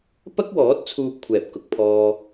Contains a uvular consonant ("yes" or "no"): no